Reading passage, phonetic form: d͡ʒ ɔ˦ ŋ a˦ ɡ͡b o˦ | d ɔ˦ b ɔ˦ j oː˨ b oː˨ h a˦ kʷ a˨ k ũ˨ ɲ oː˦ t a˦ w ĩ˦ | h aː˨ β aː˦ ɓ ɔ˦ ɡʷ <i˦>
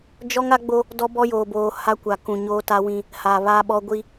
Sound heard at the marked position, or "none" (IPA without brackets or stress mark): i˦